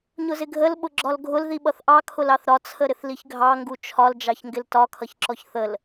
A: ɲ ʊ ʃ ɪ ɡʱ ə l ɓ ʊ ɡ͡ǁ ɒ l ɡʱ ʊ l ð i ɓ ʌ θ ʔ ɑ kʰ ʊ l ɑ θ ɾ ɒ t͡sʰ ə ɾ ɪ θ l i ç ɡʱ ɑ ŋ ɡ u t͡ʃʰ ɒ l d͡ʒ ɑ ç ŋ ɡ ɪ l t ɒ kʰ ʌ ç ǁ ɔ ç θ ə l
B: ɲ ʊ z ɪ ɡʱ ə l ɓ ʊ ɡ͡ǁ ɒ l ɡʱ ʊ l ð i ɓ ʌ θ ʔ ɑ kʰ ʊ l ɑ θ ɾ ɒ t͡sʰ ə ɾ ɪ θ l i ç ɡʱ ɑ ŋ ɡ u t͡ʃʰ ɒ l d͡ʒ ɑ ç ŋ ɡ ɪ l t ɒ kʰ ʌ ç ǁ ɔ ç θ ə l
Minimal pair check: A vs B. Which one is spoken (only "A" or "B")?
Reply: B